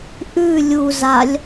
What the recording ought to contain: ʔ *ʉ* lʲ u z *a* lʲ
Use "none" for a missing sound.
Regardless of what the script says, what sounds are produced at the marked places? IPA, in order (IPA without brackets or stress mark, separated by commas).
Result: ʉ, a